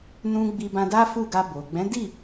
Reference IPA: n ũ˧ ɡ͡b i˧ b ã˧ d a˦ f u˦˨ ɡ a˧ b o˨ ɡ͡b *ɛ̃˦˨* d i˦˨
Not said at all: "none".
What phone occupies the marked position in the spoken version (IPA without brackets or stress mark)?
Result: ɛ̃˨˦